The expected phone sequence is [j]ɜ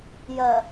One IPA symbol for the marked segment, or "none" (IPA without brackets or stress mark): j